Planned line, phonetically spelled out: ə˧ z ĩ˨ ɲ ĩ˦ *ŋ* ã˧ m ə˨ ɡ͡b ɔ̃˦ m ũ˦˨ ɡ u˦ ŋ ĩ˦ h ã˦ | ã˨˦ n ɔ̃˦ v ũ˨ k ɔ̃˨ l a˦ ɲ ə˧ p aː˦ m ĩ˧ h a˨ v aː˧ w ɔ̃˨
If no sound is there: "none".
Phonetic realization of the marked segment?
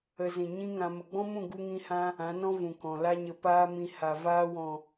ŋ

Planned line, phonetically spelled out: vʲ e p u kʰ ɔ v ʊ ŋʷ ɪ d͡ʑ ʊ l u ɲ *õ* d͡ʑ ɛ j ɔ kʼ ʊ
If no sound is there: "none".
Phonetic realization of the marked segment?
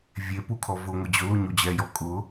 o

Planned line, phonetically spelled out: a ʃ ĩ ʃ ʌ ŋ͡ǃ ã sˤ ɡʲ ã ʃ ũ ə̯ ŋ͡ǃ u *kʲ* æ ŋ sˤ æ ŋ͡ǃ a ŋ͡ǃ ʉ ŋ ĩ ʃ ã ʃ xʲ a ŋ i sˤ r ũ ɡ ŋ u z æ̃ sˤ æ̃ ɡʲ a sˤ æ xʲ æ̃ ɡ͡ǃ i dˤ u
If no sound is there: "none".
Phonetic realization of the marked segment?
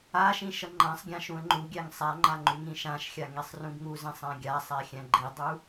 ɡʲ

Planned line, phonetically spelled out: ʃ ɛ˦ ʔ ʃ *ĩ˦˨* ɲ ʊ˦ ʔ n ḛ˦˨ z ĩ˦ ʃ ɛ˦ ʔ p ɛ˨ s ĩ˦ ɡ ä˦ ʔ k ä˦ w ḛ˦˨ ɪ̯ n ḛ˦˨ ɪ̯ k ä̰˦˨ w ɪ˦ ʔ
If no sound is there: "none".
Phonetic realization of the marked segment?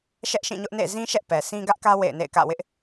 ĩ˦˨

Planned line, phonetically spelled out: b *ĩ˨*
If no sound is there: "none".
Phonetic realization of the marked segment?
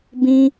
ĩ˦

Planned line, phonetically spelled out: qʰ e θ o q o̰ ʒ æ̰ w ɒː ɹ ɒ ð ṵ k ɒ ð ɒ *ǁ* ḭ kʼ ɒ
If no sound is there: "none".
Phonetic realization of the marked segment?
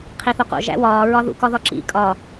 ǁ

